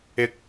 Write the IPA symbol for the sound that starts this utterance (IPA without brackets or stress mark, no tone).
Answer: ɪ